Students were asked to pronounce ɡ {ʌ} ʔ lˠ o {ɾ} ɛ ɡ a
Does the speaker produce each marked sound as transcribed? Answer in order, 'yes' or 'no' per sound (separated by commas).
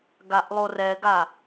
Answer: no, no